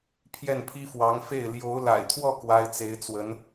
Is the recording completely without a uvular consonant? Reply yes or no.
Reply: yes